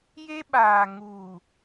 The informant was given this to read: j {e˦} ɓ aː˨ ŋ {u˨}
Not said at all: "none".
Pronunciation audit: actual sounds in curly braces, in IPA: e˦, uː˨

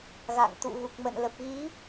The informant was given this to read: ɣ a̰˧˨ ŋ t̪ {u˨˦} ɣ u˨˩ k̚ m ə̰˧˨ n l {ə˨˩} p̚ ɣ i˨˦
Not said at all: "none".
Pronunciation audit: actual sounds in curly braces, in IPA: ṵ˧˨, ə˨˩

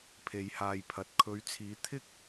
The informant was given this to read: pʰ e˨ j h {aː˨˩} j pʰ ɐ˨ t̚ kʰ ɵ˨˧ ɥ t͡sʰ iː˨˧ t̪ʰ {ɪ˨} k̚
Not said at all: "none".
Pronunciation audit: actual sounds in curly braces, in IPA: aː˨, ɪ˥

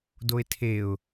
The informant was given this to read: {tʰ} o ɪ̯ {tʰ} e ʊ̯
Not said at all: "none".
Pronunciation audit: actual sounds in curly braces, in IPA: d, tʰ

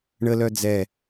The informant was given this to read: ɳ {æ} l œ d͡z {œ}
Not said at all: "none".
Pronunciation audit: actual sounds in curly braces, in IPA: ə, ɛ

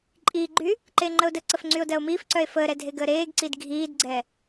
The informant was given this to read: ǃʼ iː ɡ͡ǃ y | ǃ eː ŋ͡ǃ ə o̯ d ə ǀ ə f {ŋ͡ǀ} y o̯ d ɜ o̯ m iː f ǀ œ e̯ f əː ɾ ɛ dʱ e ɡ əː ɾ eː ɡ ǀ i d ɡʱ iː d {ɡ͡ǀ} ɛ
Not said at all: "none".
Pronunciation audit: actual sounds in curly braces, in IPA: ŋ͡ǀ, ɡ͡ǀ

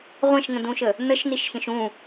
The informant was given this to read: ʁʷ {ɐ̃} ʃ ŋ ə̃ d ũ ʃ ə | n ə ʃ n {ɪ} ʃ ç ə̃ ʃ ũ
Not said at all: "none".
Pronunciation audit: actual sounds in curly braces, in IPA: ɐ̃, i

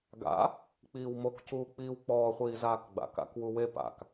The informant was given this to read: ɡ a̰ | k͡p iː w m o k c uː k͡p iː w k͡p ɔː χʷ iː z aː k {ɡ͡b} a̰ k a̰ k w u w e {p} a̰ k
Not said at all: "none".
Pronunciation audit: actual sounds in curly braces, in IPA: ɡ͡b, p

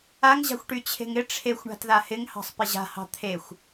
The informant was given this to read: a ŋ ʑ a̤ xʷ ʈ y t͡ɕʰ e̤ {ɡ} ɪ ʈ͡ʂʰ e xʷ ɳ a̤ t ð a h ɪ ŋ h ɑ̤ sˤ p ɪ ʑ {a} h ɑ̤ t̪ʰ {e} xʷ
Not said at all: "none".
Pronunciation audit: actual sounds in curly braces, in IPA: ŋ, a̤, e

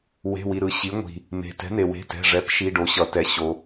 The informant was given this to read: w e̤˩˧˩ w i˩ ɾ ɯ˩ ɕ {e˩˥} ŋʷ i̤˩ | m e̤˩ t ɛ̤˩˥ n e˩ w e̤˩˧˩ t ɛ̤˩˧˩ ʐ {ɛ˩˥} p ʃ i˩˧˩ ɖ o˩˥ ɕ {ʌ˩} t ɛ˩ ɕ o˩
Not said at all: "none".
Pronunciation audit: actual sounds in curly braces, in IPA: i˩˥, ɛ˩˥, ʌ˩

